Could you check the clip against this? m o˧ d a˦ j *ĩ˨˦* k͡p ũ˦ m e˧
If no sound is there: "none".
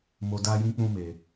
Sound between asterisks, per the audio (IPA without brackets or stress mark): ĩ˦